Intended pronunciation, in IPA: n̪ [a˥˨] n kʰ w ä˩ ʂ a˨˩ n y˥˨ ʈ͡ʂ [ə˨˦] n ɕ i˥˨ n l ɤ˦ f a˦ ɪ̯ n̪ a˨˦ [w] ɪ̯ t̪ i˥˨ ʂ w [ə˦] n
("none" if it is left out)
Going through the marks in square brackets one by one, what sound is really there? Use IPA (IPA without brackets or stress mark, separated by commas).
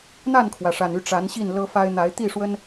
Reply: a˥˨, a˨˦, none, ə˦